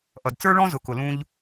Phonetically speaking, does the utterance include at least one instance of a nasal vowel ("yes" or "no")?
yes